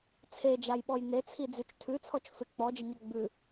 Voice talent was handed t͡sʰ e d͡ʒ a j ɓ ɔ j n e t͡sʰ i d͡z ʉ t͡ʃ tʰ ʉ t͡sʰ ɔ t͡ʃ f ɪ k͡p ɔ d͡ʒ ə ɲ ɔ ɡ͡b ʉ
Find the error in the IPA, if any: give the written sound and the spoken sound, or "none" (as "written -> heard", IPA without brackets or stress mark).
none